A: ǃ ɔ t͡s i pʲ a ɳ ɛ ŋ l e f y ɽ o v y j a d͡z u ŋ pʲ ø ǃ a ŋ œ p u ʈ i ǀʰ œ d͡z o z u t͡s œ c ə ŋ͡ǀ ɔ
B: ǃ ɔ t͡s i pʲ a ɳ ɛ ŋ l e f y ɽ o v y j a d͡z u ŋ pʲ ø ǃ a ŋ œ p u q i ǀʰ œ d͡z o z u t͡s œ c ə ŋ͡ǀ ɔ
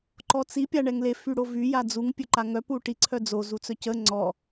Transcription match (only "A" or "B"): A